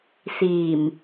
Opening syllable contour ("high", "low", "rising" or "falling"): low